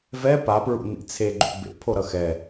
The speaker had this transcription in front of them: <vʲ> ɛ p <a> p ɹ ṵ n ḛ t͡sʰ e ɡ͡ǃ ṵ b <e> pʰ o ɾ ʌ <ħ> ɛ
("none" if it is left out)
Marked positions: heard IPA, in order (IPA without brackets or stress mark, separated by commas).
v, a, ḛ, x